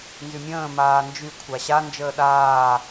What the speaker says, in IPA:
n z y mʲ ə̃ː m aː n d͡ʒ y kʷʰ a ɕ a n d͡ʒ əː ɗ aː

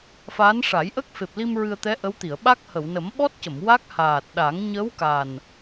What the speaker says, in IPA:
f aː˧˥ n ʂ a˨˩˦ j ʔ ə˦˥ k̚ f e˨˩ p̚ l i˧ m ɹ ɨ˧ ə̯ t̪ ɛ˧˥ ʔ ə˧˥ w t̪ i˨˩˨ ə̯ ɓ a˦˥ k̚ h ə˨˩˨ w n ə˨˩˦ m ɓ ɔ˦˥ t̚ c ə˨˩˨ m w a˦˥ k̚ h aː˨˩ t̚ ɗ a˨˩˦ ŋ ɲ ə˧˥ w k a˨˩ n

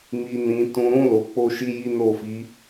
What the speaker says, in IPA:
m i˧ n ĩ˧ t ũ˧ ɾ ũ˦ l o˧ k͡p o˦ ʃ i˦ j i˦ n o˦˨ f i˨˦

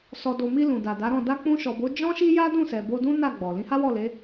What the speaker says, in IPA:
s ɔ˨ d o˨ m i˧ l ũ˨ d a˨ d a˨˦ ɾ ɔ̃˦˨ d a˧ k͡p ũ˧ ʃ ɔ˨ b o˨˦ d͡ʒ ɔ̃˦ ʃ i˦ j a˦ d ũ˦˨ s ɛ˨ b o˧ d ũ˦ n a˦˨ ɡ͡b ɔ˨ l ĩ˨˦ h a˦ w ɔ˦˨ l e˨˦

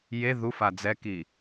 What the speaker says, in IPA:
j e ð u f a d͡z ɛ k i

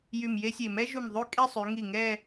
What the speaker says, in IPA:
j y˧˩ m j e˥ sʲ e˧˩ m ɛ˥ ʒ u˧˩ m ðˤ y˥˧ kʼ e˥˧ sˤ y˩˧ ŋ i˧˩ ŋ ɛ˥˧

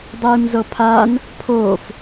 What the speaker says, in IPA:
dˤ iː m z ɤ pʰ aː n | pʰ oː f

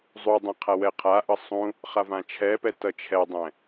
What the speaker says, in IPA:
zˤ u dˤ ẽ qʰ a w ɛ qʰ a ʔ ʌ sˤ ũ | χ a v ã t͡ʃʰ ɛ p ɛ t ʌ t͡ʃʰ ɛ dˤ ɛ̃

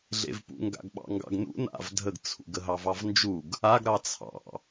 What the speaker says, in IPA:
ɮ ḛ v p ṵ ŋ ɡ a̰ ɡ ɓ ɑ̰ ŋ ɡ ɑ̰ ɡ n ṵ n a̰ v dʱ ə ɡ t͡sʰ ṵ ɡ ə ɦ ɑ v ɑ v n d͡ʒ u ɡ | a ɡ ɾ ɑ t͡sʰ ɑ̰

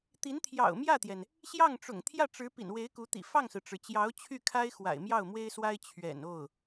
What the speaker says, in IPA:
t̪ i˧˥ n t̪ʰ j ɑ̰˨˩ ʊ̯ m j ä˥˩ t̪ j ɛ˩ n | ɕ j ɑ˥˩ ŋ ʈ͡ʂ ʊ̰˨˩ ŋ t̪ʰ j ä˥˩ ʈ͡ʂ ɻ̩˧˥ p ḭ˨˩ n w e˧˥ ɪ̯ k u˧˥ t̪ ḭ˨˩ f ɑ˥˩ ŋ s ɹ̩˩ ʈ͡ʂ ɻ̩˩ t͡ɕ j ɑ˧˥ ʊ̯ t͡ɕʰ y˥˩ kʰ a˥ ɪ̯ x w a̰˨˩ ɪ̯ m j ɑ˥˩ ʊ̯ m w e˥ ɪ̯ s w a˥ ɪ̯ t͡ɕʰ ɥ ɛ̰˨˩ n o˥˩ ʊ̯

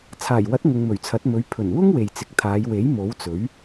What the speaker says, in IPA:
t͡sʰ aː˨˩ j w ɐ˨˥ t̚ ŋ ʊ˨ ŋ m ɵ˨˩ ɥ t͡sʰ ɐ˨˥ t̚ m ɵ˨˥ ɥ pʰ ɵ˨˩ n w ʊ˥ ŋ w e˨ j t͡s ɪ˨ k̚ t̪ʰ aː˨˧ j w e˨˥ j m o˨˥ w t͡s ɵ˨˥ ɥ

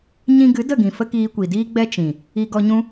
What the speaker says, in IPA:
ɲ ĩ˧ ɡ ɨ˨˦ d ə˦˨ ɡ ĩ˨ f ə˦ k iː˧ kʷ i˨ d iː˦ ɡ͡b ɛ˦ t͡ʃ ĩ˨ | i˧ ɡ ɔ˧ ɲ ũ˦

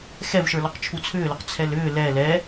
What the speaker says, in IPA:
x ɛ v ʃ ə˞ l ɔ q t͡ʃʰ u t͡sʰ ʏː l ʏ q t͡sʰ ɛ l ʏː l ɛ l ɛ

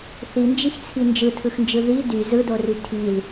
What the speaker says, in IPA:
θ i n d͡ʒ i x t͡sʰ i n d͡ʒ ɯ tʰ ɯ x n d͡ʒ ɯ ð i d y z ɯ d o r y tʰ i l

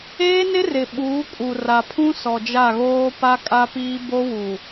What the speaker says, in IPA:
eː˦ n ɪ˦ r ɪ˨ ɓ uː˨˦ kʼ u˨ r a˨ pʰ ũ˦ s ɔ˨ d͡ʒ a˦˨ ɣ oː˦ p a˦ kʼ a˦ p iː˦ b o˦ w u˨

